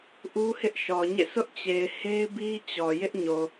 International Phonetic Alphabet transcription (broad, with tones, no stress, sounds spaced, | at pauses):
ʔ u˦ h ɪ˦ ʔ ʃ ɔ˨ ɲ ḛ˦˨ sʰ ʊ˦ ʔ t͡ɕ e˨ ɪ̯ h e˦ ɪ̯ b i˦ t͡ɕ ɔ˨ j ɪ˦ ʔ ɲ o˨